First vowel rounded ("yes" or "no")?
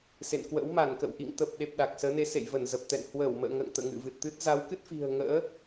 no